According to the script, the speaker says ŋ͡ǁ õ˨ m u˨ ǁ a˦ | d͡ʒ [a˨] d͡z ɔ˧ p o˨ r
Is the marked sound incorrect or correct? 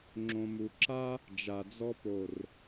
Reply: correct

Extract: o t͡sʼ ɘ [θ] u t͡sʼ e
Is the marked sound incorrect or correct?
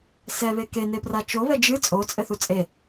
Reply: correct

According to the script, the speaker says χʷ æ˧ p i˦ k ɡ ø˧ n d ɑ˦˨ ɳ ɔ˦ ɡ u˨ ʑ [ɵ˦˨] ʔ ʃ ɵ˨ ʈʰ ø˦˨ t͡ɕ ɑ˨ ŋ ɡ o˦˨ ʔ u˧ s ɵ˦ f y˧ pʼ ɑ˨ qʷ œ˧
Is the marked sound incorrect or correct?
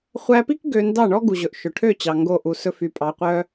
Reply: incorrect: ɵ˨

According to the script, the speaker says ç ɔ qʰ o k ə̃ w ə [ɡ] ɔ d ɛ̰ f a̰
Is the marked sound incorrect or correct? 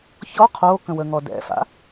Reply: incorrect: ŋ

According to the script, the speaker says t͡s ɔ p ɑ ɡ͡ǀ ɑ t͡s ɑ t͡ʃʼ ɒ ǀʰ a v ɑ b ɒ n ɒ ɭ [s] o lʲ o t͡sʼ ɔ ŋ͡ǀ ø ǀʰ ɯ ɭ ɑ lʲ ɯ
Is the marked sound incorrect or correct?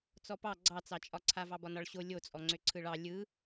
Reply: incorrect: ɕ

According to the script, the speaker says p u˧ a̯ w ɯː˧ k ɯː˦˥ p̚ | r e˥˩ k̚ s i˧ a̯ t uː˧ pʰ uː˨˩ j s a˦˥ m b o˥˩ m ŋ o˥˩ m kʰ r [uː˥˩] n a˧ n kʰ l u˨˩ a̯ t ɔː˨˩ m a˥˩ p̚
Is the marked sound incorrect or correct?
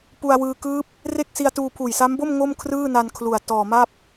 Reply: incorrect: ɯː˥˩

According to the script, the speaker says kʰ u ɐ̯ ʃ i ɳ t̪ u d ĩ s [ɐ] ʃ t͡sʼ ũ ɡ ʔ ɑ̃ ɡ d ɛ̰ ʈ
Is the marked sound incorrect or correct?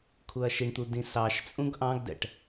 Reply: incorrect: ɑ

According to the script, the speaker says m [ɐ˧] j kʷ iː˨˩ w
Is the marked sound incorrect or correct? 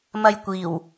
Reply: correct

